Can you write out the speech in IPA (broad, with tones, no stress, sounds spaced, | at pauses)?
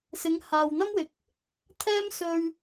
s ɪ˨˧ ŋ h aː˨ w n̪ ɐ˥ m w ɪ˨ k̚ | t̪ʰ ɛː˥ m s ɵ˧ ɥ